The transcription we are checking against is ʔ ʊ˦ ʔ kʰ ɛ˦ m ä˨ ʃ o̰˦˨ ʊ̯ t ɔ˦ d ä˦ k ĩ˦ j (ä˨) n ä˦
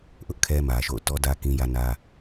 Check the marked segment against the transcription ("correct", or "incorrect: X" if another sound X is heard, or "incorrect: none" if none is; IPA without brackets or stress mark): incorrect: ä˦